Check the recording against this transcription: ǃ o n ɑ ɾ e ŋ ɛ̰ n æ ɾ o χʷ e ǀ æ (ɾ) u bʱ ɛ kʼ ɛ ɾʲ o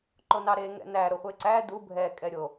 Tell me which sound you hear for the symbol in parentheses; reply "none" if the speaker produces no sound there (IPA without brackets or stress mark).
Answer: d